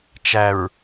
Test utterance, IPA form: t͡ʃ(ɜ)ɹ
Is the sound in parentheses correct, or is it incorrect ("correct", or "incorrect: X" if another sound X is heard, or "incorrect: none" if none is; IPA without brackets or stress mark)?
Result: incorrect: æ